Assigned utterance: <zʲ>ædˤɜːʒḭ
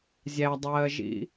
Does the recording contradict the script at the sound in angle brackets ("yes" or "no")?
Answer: no